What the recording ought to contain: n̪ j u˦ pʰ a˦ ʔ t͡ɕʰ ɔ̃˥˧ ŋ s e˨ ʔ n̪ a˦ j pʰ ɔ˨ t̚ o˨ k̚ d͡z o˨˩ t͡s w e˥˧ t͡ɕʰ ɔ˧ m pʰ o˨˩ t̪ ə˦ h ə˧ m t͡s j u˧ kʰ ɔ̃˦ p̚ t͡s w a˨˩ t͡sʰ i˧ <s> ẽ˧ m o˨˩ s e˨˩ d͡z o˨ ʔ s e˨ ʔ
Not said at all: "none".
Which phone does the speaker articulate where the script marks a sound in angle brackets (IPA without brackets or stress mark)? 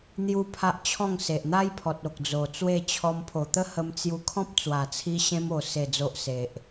ɕ